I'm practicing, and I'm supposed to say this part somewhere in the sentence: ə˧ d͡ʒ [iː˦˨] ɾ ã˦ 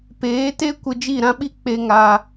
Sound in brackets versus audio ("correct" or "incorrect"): incorrect